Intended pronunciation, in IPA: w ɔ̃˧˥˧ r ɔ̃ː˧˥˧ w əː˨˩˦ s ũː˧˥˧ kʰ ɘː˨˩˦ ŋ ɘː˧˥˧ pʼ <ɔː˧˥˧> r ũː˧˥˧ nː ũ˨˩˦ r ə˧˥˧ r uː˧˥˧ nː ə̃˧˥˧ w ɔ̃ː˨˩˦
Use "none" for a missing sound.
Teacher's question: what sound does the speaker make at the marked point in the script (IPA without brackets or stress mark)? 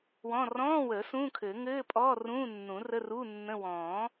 ɔː˧˥˧